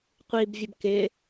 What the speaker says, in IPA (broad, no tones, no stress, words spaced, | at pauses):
qʷibvʲɘb kɪ